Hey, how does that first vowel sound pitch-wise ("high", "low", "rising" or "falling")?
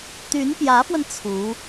rising